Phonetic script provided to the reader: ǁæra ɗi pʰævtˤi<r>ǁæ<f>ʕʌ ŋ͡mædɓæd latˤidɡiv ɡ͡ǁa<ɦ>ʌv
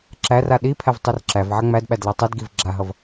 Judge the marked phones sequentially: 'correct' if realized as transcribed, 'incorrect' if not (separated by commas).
correct, incorrect, correct